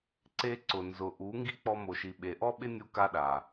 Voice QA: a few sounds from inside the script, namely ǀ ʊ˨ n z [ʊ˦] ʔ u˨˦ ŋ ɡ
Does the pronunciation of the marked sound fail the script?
yes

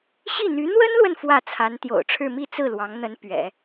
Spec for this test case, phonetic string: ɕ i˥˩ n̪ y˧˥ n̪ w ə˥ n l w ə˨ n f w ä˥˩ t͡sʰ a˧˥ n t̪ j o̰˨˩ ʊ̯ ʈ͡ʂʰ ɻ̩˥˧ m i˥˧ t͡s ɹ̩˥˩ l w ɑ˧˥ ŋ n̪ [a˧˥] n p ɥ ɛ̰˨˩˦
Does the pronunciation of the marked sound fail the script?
yes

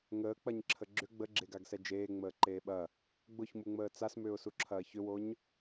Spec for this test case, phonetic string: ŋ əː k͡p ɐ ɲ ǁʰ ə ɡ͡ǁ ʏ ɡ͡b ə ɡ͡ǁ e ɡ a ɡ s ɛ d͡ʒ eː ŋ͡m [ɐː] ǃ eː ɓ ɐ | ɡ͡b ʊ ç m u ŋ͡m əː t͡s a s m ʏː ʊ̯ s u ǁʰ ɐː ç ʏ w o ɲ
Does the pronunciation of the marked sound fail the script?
yes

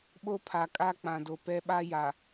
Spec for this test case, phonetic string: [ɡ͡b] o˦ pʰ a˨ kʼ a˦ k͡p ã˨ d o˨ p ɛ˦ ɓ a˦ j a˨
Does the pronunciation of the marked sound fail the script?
yes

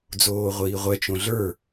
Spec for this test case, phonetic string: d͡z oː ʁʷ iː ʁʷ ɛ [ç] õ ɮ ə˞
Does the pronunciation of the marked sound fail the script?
yes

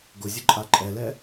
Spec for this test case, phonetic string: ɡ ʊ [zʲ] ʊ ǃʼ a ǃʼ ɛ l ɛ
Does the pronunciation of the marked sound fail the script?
no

